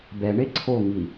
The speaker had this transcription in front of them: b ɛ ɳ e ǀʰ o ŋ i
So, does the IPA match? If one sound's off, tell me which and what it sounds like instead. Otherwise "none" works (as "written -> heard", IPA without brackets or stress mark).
none